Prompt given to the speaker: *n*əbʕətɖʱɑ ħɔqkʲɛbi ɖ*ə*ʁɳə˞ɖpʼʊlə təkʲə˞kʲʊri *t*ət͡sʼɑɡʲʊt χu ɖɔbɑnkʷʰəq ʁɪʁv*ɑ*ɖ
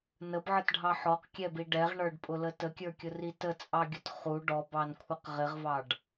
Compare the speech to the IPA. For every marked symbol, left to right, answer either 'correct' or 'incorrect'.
correct, incorrect: ɛ, correct, correct

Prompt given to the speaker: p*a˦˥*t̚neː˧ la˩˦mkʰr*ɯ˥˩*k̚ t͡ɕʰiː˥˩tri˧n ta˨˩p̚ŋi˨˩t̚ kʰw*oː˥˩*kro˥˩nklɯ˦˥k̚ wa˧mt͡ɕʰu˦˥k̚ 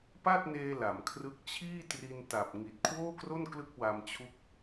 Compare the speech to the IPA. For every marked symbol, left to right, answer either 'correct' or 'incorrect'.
incorrect: a˥˩, incorrect: ɯ˦˥, correct

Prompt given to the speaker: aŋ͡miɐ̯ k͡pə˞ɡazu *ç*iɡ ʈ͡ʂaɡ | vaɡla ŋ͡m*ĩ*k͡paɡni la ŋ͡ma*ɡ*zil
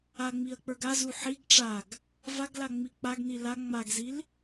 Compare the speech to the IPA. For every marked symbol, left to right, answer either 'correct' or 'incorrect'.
incorrect: ħ, incorrect: i, correct

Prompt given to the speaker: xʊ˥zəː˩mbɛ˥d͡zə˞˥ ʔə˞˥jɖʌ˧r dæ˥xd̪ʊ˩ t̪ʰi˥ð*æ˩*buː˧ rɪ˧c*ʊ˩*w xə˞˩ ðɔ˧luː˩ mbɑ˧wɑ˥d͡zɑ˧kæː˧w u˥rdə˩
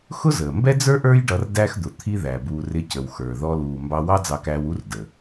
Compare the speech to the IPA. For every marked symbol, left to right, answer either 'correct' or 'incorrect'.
correct, incorrect: ə˩

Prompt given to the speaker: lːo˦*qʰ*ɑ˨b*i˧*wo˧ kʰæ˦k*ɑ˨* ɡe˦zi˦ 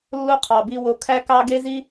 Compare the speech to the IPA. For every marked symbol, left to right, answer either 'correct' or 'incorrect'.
correct, correct, incorrect: ɑ˦

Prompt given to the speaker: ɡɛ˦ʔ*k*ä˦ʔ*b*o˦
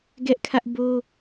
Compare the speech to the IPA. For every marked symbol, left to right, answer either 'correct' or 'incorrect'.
incorrect: kʰ, correct

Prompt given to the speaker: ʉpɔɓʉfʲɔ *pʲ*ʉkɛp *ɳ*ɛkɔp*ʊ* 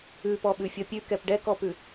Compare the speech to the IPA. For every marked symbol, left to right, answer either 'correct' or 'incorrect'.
correct, incorrect: ɖ, incorrect: ʉ

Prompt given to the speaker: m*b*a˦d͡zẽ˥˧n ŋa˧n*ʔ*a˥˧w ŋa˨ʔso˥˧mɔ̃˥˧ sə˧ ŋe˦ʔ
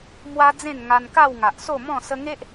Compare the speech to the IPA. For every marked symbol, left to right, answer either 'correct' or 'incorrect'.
incorrect: w, incorrect: k

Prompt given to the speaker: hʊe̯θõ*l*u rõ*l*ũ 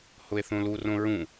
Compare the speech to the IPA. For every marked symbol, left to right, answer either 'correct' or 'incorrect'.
correct, incorrect: ɹ

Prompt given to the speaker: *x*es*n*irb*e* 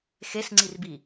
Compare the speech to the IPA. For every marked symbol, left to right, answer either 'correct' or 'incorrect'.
correct, incorrect: ŋ͡ǀ, incorrect: i

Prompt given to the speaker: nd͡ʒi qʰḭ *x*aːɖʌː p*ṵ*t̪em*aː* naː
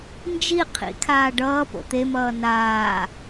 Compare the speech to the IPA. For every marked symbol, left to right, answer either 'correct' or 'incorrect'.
incorrect: kʰ, incorrect: o̰, incorrect: ʌː

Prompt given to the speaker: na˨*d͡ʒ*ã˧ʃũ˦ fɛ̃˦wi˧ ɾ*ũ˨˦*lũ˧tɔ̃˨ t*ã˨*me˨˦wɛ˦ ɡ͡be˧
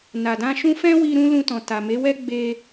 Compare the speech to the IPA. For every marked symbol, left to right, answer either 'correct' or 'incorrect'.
incorrect: d, incorrect: ũ˦, incorrect: a˨

